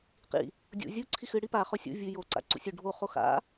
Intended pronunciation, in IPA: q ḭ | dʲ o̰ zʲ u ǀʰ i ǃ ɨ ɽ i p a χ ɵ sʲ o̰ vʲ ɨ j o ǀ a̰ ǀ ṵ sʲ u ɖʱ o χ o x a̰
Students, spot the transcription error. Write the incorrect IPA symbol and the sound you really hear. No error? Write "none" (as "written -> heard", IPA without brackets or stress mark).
ǃ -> x